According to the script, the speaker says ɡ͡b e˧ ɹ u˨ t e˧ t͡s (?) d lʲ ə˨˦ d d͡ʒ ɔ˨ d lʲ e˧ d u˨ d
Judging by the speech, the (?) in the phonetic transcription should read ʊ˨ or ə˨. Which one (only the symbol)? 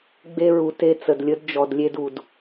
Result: ə˨